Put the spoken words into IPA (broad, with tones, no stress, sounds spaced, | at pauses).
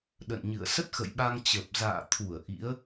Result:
ɗ ə̰˧˨ n ɲ ɨ̰˧˨ ə̯ s ə˦˥ t̚ x ə̰˧˨ j ɓ a˧ ŋ t͡ɕ ə˨˩ p̚ z a̰ː˧˨ t̪ʰ u˧˩ ə̯ ʔ ḭ˧˥ ə̯